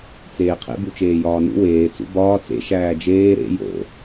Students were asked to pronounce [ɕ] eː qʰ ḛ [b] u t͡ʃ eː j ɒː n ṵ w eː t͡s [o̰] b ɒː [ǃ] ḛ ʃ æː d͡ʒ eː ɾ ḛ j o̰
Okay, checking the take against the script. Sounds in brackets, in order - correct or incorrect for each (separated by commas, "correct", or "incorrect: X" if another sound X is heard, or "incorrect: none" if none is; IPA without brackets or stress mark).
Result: incorrect: t͡s, correct, incorrect: ṵ, incorrect: t͡s